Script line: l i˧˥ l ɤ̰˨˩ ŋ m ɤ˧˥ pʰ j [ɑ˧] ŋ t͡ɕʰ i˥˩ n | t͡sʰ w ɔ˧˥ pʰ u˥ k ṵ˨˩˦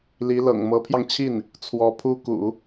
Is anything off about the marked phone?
no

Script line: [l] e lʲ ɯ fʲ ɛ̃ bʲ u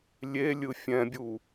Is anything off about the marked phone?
yes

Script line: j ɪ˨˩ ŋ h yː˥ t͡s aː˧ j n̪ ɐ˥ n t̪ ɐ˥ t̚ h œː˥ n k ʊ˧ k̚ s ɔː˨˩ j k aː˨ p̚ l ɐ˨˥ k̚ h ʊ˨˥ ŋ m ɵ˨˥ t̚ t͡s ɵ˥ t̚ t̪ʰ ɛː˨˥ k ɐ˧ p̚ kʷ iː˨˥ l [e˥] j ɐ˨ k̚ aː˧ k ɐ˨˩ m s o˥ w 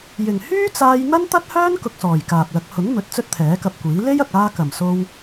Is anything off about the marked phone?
no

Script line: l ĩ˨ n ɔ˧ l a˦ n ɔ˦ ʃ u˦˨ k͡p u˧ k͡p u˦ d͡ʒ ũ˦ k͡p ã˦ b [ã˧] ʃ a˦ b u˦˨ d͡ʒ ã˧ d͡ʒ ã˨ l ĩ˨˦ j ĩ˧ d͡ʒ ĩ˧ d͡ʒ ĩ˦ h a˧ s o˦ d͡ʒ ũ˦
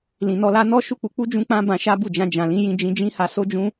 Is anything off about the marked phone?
no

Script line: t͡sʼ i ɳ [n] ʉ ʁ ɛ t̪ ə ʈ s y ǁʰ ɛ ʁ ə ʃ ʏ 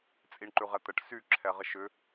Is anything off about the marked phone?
yes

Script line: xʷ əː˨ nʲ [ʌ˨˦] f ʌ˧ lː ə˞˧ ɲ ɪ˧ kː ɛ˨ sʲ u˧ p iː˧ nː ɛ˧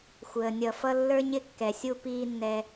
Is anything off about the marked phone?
yes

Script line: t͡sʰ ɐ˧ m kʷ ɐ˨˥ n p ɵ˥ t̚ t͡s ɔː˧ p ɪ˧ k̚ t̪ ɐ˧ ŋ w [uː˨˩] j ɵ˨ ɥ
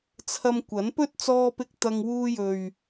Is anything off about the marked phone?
yes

